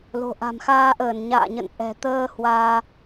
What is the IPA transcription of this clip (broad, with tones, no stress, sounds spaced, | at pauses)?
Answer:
l o̤˨˩ ʔ a̤˨˩ m x aː˧ ʔ əː˧˩ n ɲ a̰ː˧˨ ɲ ə̰˧˨ n ʔ ɛ̤˨˩ t̪ əː˧ h w aː˧